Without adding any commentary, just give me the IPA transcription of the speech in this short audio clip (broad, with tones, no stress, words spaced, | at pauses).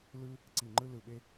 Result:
lɯ˥ | ǀi˧˩ŋ͡ǃɯ˥lɯ˧˩ɓe˥